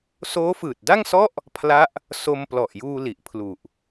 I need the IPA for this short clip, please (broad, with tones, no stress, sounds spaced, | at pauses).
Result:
s oː˦˥ f ɯː˨˩ t̚ d a˥˩ ŋ s ɔ˥˩ ʔ | pʰ l a˦˥ ʔ | s o˧ m p l ɔ˨˩ ʔ j uː˧ l i˨˩ ʔ pʰ l u˨˩ ʔ